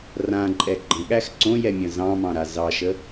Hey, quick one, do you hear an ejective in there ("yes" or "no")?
yes